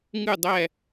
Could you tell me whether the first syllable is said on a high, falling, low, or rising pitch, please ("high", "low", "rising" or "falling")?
falling